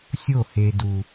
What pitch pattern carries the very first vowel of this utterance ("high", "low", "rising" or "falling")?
falling